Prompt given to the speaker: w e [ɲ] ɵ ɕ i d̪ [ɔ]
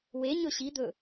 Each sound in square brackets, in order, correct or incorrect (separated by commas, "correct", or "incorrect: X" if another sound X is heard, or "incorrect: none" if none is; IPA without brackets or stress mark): correct, incorrect: ɵ